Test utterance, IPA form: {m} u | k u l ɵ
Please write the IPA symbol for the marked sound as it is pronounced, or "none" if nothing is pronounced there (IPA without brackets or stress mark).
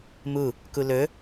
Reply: m